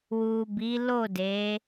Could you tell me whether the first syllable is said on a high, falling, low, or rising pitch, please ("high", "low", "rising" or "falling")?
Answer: low